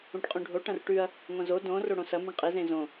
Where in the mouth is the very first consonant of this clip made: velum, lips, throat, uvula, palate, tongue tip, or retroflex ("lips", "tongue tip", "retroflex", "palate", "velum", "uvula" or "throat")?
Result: retroflex